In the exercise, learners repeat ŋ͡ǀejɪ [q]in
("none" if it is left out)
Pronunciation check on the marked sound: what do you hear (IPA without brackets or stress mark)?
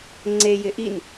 ʔ